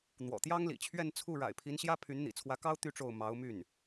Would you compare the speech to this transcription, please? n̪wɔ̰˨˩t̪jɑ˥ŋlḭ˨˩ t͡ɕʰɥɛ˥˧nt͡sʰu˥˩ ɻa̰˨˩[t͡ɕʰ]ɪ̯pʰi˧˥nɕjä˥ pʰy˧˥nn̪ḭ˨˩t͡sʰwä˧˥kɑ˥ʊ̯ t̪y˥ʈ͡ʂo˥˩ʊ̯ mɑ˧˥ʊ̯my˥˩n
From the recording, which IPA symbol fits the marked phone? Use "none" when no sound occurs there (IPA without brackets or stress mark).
none